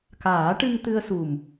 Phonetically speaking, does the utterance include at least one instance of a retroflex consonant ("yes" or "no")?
yes